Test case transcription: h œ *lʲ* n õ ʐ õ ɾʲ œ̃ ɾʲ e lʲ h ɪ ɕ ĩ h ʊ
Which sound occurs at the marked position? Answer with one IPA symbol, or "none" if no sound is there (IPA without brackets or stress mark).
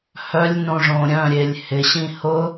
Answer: lʲ